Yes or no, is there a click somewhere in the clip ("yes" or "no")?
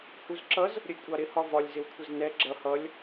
yes